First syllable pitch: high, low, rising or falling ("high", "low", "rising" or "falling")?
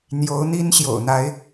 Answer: rising